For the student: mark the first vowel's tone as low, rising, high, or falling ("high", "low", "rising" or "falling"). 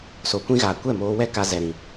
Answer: low